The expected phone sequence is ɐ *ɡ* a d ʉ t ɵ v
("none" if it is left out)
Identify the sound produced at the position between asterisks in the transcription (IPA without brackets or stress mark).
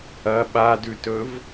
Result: ɓ